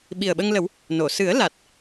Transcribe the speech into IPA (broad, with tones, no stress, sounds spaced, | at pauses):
ɓ i˨˩ ə̯ ɓ ə˧ ŋ l ə˨˩˦ w | n o˨˩˨ s ɨ˨˩˦ ə̯ l a˨˩ t̚